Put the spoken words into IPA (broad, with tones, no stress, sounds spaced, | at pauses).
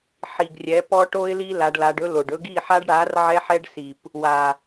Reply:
ħ i˨ ɡ rʲ ɛ˨˦ p ɔ˦ ʈ o˦ ɪ̯ l i˦ l a˧ ɖ l a˧ ɖ ɵ˦ l o˨ ɖ ɵ˧ ɡ i˦˨ ħ a˦ ɖ ɽ a˨˦ r ʕ ɛ˦ ħ ɛ˦ ɖ s i˨ p | w a˨